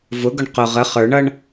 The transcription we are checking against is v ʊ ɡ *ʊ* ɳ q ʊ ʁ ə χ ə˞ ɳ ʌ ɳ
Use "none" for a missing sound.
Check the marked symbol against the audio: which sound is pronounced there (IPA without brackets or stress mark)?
ʊ